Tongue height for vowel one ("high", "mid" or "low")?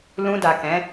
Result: high